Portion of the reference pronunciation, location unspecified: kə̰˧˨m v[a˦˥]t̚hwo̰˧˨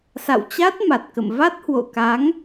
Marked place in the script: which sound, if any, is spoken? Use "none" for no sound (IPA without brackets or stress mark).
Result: a˦˥